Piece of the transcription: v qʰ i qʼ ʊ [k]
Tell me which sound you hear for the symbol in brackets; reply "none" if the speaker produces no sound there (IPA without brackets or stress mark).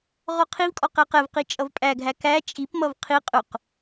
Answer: q